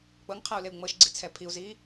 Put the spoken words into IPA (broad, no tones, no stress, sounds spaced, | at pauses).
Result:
k͡p ɤ ŋ qʰ a u̯ l e u̯ ŋ͡m ɤ ʃ ɡ͡ǀ i t͡sʰ ɛ pʰ i u̯ z iː